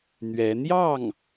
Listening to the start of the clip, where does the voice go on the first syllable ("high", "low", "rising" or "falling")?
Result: rising